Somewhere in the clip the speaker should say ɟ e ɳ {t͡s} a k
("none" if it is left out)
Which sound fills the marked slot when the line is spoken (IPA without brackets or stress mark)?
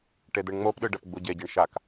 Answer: ʃ